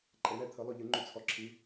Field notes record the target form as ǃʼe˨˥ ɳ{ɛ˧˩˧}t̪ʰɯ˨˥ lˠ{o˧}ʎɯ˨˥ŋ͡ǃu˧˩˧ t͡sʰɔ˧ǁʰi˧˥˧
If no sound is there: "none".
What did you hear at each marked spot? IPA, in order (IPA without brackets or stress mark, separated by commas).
ɛ˧˩˧, o˧